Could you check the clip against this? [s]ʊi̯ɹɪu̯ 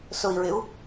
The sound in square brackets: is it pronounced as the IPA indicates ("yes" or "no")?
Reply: yes